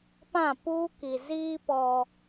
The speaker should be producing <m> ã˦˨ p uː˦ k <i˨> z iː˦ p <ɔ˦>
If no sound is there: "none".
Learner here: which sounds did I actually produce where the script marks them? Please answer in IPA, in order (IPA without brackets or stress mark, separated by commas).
p, i˨, ɔ˦